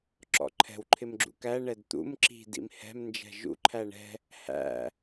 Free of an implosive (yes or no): yes